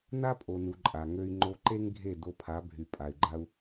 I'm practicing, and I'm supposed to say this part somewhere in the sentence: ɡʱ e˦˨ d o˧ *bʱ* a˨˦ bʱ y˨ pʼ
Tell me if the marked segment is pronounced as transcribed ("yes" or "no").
no